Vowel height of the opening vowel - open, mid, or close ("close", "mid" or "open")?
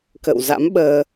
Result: mid